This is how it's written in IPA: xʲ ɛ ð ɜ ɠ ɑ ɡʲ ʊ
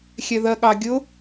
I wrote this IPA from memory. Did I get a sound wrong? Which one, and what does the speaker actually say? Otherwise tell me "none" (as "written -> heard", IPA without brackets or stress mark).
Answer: none